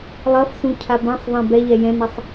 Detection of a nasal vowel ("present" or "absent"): present